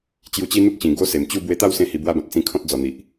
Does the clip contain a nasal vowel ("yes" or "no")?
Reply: yes